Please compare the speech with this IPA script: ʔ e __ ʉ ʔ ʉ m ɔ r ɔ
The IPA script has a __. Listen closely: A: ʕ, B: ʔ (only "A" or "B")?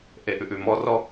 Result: B